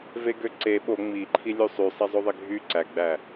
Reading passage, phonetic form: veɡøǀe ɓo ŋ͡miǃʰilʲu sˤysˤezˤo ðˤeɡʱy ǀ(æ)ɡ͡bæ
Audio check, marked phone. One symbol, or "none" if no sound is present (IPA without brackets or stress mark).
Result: æ